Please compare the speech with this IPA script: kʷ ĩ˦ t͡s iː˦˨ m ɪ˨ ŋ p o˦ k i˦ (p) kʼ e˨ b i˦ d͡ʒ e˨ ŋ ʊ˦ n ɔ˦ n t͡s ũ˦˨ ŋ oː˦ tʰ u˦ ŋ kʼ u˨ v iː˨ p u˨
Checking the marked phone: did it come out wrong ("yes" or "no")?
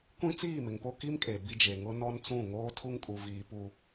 yes